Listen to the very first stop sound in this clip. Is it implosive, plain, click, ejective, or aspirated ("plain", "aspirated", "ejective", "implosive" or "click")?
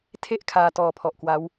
aspirated